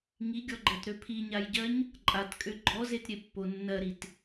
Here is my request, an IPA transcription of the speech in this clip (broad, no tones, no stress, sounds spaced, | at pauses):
ŋ i ɡʲ ɔ ɡ͡ǃ ɜ t ɾ ø pʰ i ɲ a j ɟ ɜ ɲ | ǃʼ a t kʼ ø ɡ͡ǃ ɔ z e t ɾʲ e pː o nː ɜ ɾ i t